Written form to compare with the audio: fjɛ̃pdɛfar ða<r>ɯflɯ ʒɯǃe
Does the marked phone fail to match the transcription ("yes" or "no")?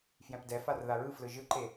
yes